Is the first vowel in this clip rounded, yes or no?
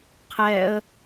no